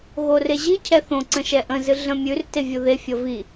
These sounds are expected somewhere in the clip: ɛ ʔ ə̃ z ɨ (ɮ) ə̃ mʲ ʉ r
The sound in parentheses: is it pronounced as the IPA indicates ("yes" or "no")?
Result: yes